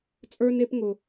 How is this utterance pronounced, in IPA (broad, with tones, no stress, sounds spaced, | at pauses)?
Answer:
t͡sʼ ə˞˧ n e˧ p ŋ ʊ˨